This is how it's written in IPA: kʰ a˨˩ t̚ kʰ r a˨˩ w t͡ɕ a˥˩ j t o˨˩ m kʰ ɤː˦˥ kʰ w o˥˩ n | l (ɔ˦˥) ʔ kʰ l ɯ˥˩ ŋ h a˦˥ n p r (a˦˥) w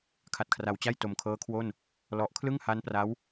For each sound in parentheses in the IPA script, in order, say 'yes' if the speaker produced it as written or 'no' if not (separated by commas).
no, yes